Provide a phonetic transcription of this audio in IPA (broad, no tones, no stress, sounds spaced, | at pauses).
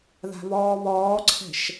ð a̤ β ɔː β ɔː ǀʰ ɛ̤ ʃ